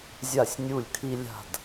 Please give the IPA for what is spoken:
zʲa˧˩sʲ nʲu˧˩lʲkʰi˧ lʲa̤˧˩d

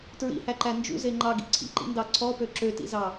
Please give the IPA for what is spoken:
tɹḭhæǃæ nd͡ʒṵze ŋ͡ǃɑɡḭ ǀʰḭǃḭndɑ ǀʰɔpø ǁøtḭzɑ

